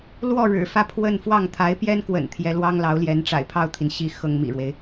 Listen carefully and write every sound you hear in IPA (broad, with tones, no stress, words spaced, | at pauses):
lwɔ˥˩ɻɻ̩˨˩fä˥˧ pʰwə˥˧n fwɑ˥˩ŋt̪ʰa˧˥ɪ̯pjɛ˥nkwə̰˨˩n t̪ʰjɛ˧˥lwɑ˥ŋlɑ˧˥ʊ̯ljɛ˧˥n ʈ͡ʂa̰˨˩ɪ̯pʰɑ˥˩ʊ̯t̪ʰi˩n ɕi˥˩ xɤ˥ŋmḭ˨˩ɻwe˦ɪ̯